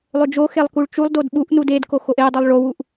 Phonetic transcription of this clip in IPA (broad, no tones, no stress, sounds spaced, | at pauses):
lˠ ø d͡ʒ o x e lˠ k u ɭ t͡ʃ u lˠ d o d ɓ u ʔ n u d e d k o x o ʔ e dˤ u lˠ ɭ o w u ʔ